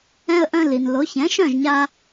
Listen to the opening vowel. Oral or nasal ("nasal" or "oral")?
nasal